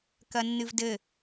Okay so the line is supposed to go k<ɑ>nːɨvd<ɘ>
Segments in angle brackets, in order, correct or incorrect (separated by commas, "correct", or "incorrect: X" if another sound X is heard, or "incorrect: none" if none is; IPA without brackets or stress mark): incorrect: ɐ, correct